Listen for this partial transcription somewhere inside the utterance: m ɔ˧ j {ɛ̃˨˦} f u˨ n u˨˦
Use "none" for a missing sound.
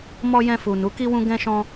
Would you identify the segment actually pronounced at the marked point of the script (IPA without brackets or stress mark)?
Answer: ɛ̃˧